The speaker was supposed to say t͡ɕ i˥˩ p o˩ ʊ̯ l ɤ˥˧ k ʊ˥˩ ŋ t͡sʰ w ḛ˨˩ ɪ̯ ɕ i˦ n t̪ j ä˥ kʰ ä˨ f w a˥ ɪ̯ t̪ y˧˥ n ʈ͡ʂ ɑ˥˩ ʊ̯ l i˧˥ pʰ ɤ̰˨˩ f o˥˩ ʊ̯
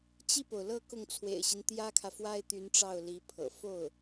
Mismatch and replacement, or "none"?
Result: none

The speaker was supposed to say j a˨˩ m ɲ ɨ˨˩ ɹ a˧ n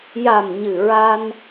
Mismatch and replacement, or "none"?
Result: none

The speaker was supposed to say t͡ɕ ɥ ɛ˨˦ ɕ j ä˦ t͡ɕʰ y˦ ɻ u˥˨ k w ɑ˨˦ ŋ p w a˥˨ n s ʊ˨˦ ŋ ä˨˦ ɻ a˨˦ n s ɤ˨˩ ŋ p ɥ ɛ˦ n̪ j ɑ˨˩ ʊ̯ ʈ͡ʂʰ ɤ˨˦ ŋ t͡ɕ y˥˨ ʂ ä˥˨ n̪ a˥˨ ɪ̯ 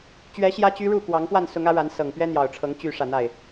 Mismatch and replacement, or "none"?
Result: t͡ɕʰ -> t͡ɕ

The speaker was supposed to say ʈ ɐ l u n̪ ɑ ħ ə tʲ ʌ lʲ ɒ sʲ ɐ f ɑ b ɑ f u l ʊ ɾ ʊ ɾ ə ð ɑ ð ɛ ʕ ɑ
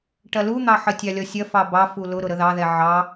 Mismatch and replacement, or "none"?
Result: ʌ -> ɑ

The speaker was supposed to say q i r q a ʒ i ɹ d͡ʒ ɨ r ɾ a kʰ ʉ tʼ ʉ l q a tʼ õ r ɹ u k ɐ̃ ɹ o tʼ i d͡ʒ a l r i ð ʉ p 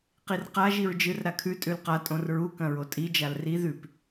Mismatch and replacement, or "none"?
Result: none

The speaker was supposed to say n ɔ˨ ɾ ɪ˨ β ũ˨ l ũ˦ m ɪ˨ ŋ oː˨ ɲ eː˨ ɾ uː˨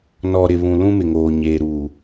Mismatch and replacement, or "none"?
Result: none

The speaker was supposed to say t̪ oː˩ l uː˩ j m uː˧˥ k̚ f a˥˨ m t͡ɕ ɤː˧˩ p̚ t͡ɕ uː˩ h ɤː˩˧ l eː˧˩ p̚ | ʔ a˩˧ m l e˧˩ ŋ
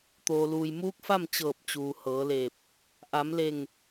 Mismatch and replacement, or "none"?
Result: none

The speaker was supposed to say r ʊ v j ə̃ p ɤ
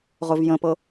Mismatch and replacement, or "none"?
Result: r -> ʁ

